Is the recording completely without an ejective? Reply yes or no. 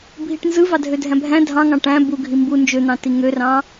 yes